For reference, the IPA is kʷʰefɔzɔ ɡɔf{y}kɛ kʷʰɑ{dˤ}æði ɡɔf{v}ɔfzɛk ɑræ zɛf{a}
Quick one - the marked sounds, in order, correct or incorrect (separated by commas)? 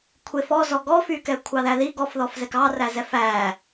correct, incorrect, incorrect, incorrect